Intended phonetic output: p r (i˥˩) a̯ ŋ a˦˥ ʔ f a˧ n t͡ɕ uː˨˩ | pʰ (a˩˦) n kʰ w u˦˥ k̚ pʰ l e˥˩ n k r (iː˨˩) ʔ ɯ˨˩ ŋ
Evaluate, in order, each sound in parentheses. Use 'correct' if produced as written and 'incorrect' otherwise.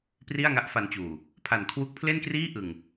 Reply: correct, incorrect: a˨˩, incorrect: iː˥˩

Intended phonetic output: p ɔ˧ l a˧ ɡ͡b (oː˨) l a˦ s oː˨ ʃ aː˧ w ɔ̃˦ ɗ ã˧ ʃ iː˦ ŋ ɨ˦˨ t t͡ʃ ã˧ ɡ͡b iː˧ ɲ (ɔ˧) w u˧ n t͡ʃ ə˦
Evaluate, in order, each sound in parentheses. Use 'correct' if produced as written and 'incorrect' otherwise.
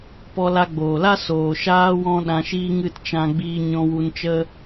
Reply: correct, incorrect: ɔ̃˧

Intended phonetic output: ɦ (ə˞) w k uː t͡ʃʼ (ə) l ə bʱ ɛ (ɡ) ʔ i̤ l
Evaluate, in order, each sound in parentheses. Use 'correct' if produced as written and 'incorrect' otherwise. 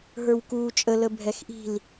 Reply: correct, correct, incorrect: x

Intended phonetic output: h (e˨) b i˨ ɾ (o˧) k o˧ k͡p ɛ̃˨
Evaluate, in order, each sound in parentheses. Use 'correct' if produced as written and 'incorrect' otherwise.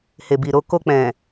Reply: correct, correct

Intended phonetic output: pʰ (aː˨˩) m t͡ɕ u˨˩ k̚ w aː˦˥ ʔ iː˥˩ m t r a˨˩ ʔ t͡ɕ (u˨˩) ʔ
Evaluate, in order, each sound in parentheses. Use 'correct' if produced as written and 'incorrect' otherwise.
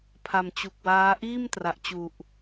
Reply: incorrect: a˨˩, correct

